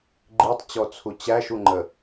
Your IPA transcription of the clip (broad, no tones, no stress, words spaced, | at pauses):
ɡ͡ǃitˤt͡ɕɔt͡sʰu t͡ɕæʃuŋ͡ǃə